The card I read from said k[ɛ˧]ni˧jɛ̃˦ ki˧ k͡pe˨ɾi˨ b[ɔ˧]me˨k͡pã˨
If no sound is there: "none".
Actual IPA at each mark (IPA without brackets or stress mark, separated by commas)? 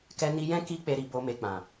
ɛ˧, o˧